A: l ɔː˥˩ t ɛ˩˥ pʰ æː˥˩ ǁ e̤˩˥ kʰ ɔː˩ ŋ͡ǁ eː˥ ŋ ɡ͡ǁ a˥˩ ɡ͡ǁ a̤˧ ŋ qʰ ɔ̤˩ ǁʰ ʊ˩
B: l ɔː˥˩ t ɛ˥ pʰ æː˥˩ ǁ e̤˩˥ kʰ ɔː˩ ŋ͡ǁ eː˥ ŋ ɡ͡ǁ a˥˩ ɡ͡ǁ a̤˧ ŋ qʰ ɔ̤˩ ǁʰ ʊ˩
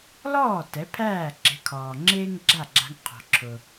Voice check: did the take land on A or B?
A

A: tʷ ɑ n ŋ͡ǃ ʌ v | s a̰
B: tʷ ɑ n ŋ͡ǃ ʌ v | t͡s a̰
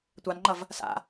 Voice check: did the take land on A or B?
A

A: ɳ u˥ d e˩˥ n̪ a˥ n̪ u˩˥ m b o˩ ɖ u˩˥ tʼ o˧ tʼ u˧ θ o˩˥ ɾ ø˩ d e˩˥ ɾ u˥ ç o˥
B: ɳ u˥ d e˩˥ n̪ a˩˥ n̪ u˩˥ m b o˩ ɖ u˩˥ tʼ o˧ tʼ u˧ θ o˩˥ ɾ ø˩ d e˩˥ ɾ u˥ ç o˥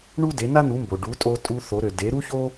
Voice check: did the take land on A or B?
A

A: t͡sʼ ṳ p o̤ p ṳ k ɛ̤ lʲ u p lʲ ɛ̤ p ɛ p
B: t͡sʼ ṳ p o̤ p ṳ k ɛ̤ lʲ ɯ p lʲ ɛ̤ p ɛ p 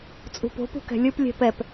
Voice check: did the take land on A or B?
B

